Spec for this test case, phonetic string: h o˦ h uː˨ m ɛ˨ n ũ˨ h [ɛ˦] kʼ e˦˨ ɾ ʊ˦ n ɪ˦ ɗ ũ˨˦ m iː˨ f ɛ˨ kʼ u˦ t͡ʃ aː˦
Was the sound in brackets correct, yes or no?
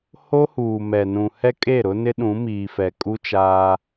yes